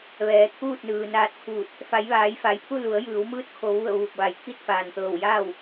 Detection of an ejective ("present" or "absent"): absent